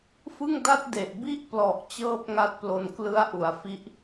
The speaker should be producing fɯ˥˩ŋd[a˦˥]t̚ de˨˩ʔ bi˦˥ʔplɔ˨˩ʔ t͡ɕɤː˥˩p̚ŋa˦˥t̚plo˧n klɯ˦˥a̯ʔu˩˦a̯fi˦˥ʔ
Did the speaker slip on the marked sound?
yes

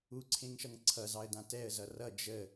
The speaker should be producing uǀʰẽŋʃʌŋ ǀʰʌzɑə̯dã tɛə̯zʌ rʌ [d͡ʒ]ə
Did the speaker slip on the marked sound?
no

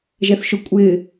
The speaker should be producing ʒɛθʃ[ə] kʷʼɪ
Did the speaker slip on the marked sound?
yes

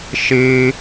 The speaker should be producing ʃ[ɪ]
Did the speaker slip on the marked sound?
yes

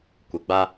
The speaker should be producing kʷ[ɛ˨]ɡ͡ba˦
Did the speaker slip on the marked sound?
yes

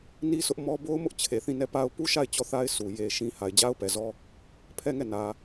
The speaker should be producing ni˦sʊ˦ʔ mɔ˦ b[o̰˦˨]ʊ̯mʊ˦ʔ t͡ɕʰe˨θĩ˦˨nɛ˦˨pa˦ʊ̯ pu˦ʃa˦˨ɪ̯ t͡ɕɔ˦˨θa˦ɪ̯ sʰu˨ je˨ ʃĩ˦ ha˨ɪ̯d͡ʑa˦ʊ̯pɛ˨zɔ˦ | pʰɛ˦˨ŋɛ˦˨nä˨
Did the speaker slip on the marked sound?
yes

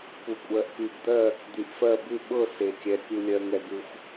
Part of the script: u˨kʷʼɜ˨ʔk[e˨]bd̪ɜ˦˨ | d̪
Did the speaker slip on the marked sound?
yes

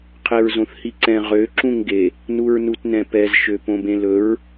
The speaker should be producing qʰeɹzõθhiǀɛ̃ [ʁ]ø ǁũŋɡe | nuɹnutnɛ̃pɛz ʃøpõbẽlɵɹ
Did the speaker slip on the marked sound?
no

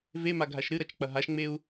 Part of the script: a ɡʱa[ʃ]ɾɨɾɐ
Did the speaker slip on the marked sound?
no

